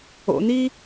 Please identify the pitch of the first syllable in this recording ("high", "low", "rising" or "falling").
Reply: low